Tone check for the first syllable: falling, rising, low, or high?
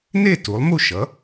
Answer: falling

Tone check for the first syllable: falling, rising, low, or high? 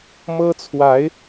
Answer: high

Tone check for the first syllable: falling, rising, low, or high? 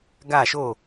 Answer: falling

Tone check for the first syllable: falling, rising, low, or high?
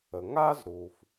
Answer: low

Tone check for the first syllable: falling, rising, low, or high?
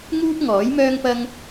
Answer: high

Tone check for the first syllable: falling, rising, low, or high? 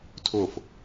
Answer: falling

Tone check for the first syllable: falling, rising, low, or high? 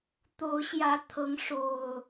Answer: rising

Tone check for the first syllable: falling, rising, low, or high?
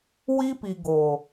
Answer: high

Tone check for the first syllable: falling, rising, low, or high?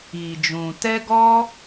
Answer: low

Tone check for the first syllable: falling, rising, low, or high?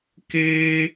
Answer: high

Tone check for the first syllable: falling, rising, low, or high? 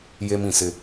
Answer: high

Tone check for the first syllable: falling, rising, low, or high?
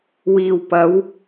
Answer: low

